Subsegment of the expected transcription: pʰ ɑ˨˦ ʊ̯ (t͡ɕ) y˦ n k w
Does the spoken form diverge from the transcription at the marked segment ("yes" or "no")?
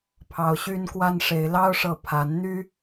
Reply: yes